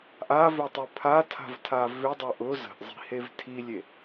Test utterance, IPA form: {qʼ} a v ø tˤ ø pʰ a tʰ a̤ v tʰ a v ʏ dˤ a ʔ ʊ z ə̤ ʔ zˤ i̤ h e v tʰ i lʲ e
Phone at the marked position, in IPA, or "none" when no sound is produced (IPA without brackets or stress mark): ʔ